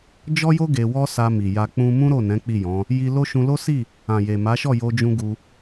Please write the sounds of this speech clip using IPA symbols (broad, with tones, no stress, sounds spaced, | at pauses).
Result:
d͡ʒ ɔ˦ j o˦ ɡ e˧ w ɔ˦ s a˧ m i˨ j a˧ k͡p ũ˧ m ũ˦ ɾ o˦˨ n ɛ̃˨˦ k͡p i˦˨ j ɔ̃˨˦ | j i˧ l o˦ ʃ ũ˧ l o˦ s i˦˨ | ã˨ j e˨ m a˨˦ ʃ ɔ˦˨ j o˧ d͡ʒ ũ˦ ɡ u˧